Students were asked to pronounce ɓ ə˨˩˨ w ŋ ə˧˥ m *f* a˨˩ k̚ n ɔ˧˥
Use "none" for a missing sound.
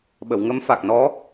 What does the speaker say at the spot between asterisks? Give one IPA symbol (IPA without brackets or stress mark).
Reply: f